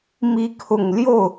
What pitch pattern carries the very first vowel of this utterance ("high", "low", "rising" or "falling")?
rising